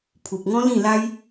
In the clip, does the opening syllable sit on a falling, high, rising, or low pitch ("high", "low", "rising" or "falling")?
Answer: low